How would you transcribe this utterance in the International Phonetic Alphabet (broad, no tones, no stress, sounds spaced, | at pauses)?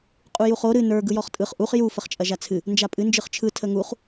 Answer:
qʼ u j u χ o ɾ ɨ n ə˞ ɡ ɯ j ɔ χ tʼ ɯ χ ʔ u χ j u f ə χ t͡ʃʼ ɐ ʒ a t͡sʰ ɨ | n d͡ʒ a pʼ ɨ n d͡ʒ ɯ χ t͡ʃʰ ɯ tʰ ə ŋ u χ